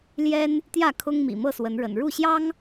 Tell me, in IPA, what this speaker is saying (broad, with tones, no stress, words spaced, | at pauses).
ljɛ˦n | t̪jä˥˨kʰʊ˦ŋ mḭ˨˩mɤ˥˨swə˨˦nɻə̰˨˩n ɻu˥˨ɕjɑ˦ŋ